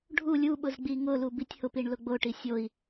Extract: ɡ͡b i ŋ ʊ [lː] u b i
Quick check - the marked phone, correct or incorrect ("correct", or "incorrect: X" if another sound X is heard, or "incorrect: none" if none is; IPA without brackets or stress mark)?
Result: incorrect: l